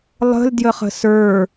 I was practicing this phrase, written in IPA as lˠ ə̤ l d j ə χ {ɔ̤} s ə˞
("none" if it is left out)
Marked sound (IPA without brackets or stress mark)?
ə̤